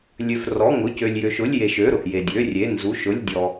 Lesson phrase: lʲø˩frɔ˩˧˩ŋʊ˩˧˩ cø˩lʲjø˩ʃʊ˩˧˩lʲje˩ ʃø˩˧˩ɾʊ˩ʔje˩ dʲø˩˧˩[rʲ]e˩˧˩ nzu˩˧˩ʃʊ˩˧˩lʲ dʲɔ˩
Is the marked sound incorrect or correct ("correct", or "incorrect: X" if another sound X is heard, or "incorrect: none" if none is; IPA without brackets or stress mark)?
correct